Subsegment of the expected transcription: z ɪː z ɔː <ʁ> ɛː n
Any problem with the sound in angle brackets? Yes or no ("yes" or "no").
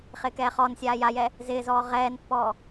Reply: no